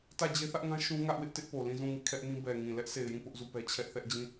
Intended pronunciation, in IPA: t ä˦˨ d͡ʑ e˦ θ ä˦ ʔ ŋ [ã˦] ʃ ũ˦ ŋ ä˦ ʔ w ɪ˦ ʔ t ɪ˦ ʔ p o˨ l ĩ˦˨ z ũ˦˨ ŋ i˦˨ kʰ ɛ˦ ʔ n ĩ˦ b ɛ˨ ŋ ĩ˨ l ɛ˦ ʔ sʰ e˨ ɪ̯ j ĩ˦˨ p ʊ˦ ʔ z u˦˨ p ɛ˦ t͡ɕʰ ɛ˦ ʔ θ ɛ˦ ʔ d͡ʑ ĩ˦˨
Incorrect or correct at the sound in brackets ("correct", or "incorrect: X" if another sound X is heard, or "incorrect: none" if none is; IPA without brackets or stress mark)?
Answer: correct